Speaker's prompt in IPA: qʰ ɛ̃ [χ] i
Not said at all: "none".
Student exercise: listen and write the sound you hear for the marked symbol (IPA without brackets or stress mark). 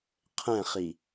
χ